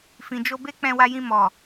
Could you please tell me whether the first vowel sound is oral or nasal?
nasal